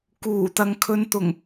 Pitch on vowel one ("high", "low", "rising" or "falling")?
low